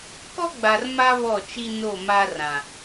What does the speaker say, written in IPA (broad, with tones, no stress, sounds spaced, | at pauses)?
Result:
k ɔ˦ ɡ͡b a˨ r m a˦ β ɔ˦˨ t͡ʃ i˦ n o˦˨ m a˦ r ã˨